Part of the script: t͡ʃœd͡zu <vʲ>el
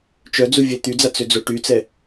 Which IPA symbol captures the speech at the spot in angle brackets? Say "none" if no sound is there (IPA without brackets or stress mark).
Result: vʲ